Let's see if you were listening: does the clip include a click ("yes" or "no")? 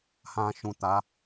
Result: no